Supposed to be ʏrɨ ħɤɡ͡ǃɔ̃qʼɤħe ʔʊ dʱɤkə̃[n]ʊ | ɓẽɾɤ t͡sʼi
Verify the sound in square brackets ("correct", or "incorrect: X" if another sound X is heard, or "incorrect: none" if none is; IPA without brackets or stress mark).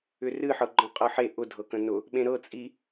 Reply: correct